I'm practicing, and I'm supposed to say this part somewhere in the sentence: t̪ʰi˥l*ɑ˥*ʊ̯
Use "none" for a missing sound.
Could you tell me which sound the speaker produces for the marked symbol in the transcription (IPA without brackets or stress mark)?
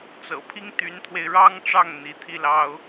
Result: ɑ˥